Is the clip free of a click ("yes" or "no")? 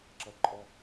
no